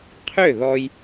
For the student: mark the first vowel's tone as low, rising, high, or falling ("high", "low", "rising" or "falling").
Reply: falling